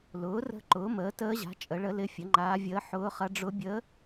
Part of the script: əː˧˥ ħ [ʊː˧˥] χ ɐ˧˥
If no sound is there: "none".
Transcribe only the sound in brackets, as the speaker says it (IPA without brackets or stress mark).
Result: ʊː˧˥